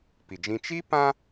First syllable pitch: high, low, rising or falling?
low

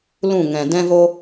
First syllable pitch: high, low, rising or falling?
falling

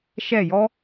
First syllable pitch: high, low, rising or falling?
falling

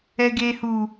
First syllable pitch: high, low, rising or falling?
low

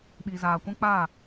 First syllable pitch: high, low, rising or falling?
low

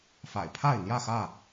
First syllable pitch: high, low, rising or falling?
low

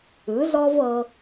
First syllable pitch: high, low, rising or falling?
rising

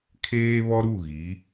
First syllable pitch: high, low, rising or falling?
high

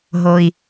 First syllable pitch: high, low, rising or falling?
low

